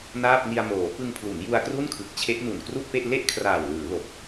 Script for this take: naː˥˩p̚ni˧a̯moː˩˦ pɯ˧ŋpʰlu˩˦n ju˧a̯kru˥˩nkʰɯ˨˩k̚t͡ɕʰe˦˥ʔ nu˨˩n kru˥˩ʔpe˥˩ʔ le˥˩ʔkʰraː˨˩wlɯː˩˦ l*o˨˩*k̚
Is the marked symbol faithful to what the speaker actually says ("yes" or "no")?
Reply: yes